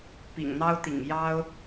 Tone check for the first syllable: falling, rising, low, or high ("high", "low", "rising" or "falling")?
low